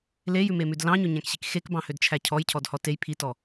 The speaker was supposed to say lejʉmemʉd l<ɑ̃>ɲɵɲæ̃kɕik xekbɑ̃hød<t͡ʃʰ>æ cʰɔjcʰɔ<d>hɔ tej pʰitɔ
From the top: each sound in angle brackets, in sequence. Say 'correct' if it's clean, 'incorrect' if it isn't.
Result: correct, correct, correct

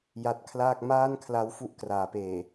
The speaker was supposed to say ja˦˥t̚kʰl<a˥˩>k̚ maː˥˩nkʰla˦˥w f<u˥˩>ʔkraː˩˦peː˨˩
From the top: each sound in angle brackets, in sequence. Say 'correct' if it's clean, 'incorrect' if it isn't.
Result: incorrect: aː˥˩, correct

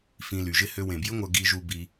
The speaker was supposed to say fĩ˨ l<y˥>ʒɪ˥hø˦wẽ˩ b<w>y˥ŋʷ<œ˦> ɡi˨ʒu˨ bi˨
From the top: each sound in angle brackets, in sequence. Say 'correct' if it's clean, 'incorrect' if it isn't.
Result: incorrect: y˩, incorrect: j, incorrect: œ˨

